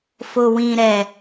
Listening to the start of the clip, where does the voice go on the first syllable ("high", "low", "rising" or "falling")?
low